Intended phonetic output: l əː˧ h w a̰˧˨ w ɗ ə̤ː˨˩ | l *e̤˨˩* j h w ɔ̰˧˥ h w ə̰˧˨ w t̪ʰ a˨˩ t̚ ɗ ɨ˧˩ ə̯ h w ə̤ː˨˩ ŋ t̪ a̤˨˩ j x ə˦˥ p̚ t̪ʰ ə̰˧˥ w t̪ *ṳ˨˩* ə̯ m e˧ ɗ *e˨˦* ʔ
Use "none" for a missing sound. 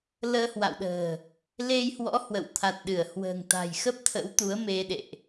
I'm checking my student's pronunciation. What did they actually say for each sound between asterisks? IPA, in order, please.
e˧, u˨˦, ḛ˧˨

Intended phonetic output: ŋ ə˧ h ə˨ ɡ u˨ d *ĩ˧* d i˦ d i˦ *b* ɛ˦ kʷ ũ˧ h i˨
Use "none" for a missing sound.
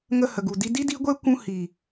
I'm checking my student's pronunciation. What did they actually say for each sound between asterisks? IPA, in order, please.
i˧, ɡʷ

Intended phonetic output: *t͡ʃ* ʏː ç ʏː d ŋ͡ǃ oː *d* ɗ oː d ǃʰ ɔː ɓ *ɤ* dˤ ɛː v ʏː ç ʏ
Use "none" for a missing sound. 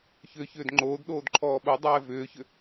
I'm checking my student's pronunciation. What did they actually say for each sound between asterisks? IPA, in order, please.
ç, d, o

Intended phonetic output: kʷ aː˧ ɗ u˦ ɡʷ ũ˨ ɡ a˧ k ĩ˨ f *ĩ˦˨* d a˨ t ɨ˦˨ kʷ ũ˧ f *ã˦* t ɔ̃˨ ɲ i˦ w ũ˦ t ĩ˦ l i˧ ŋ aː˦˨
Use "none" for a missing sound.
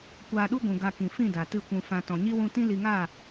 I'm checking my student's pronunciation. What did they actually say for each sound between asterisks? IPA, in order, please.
ĩ˦˨, ã˧

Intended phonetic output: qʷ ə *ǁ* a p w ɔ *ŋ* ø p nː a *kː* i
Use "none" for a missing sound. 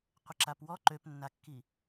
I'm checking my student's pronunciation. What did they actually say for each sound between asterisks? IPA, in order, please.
ǁ, ǃ, kː

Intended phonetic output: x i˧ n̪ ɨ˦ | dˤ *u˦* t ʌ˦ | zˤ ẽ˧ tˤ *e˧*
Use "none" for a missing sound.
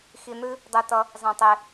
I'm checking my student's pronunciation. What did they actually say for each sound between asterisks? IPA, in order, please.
ɯ˦, e˧

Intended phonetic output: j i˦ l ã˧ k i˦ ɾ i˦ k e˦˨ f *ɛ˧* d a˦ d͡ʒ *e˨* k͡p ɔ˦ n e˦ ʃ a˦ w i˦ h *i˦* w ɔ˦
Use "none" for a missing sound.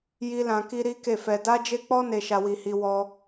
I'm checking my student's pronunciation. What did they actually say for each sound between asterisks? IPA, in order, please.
ɛ˧, e˦, i˦

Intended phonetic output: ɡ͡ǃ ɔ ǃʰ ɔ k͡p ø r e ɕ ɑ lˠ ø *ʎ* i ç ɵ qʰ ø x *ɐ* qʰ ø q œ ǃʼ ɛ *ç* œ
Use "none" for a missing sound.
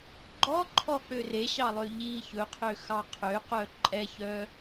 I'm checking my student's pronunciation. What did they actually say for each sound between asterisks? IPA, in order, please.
ʎ, ɑ, ç

